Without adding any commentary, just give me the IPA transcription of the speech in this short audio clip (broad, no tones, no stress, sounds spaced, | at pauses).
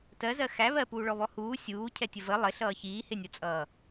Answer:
t ɜ z ɜ x æ β ɜ p uː ɭ ɔ β ɔ h uː sʲ uː cʰ ɛ tʲ ə v ə lˠ ɪ ɬ ʌː ç iː h ɪ nʲ ʊ t͡sʼ ʌː